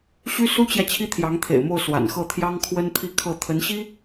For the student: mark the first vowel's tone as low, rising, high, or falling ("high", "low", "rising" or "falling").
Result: high